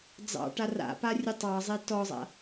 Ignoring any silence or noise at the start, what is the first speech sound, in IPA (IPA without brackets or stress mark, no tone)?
d͡z